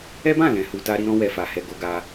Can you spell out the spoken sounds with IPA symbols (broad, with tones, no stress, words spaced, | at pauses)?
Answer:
ɛ˦bã˦˨lɛ̃˨ hu˧ta˦ɾi˦ɾɔ̃˦ wɛ˧fa˨hɛ˧ ɡo˦ɡa˦